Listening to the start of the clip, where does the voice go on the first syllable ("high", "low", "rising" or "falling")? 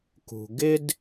low